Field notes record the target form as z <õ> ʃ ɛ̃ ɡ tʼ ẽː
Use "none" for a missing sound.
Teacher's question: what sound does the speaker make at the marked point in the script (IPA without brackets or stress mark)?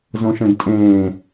õ